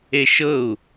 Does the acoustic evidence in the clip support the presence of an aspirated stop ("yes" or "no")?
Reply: no